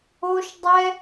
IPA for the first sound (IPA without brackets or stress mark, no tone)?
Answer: o